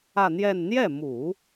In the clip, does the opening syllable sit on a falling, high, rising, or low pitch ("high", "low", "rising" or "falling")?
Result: falling